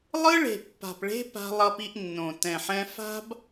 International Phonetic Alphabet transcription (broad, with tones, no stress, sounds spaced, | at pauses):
lˠ ɯ˦ ɭ e̤˨ pː a̤˨ p ɭ e̤˦ p a̤˦ lˠ ʌ˦ p i˦ ʔ nː õ˨ t ɛ̃˨ ħ ɛ̃˦ f a̤˦ b